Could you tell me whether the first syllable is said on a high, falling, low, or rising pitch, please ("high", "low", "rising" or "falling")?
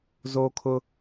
high